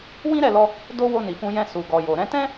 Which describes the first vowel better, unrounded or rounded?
unrounded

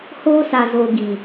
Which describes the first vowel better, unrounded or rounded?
rounded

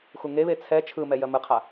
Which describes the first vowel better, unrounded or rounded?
rounded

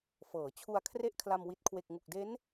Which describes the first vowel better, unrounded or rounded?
unrounded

